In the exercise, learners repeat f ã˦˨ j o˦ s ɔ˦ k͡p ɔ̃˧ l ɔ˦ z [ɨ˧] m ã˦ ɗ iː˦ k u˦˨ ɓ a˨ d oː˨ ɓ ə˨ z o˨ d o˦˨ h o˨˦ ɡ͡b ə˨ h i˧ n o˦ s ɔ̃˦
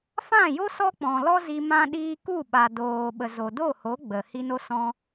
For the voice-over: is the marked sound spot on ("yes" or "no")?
no